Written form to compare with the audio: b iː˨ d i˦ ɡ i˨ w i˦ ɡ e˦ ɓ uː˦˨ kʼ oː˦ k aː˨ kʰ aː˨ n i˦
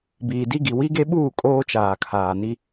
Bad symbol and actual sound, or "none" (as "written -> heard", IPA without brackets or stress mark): k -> t͡ʃ